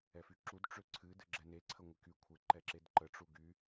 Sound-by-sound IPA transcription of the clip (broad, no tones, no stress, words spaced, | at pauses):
ɛfyǁud ʈ͡ʂøǀʰɨ dɨɡ͡ǁɛne ǀʰəŋʷɪky kʷʰɪ ǃɛǁedǃə ʈ͡ʂuɡy